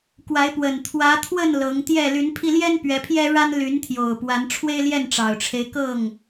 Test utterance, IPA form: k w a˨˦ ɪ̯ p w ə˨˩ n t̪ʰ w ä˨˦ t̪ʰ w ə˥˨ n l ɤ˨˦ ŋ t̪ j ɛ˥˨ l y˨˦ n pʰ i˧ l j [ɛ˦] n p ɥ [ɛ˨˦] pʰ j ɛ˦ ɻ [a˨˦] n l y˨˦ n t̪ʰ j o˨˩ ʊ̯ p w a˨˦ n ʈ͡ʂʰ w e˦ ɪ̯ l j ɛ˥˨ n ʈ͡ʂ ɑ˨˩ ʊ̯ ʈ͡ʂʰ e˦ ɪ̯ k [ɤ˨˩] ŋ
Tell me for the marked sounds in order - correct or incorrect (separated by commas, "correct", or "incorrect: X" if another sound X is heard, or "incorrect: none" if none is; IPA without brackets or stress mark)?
correct, correct, incorrect: a˦, incorrect: ɤ˥˨